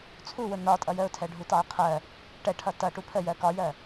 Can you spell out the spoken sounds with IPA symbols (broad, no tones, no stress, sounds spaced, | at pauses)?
t͡sʰ u w ʊ n ɒ tʼ ʌ j ə ʊ̯ tʰ ɛ ɖʱ u t ɑ ə̯ qʰ ɜ | ʈ ɛ ʈʰ ʌ t ʌ ʈ u pʰ ə j ɜ k ɒ j ɜ